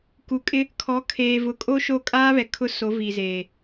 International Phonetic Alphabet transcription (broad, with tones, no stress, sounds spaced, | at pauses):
k u˨˦ kʼ ɪ˦ | kʰ ɔ˨˦ kʰ eː˨ v ʊ˨˦ kʼ o˦ ʃ o˦˨ kʼ aː˦ β ɛ˨ kʰ ʊ˦ s o˨˦ v i˨ z eː˨